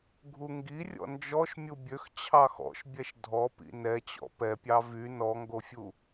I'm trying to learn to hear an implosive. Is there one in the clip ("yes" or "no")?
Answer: no